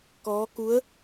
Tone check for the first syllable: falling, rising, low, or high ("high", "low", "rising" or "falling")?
rising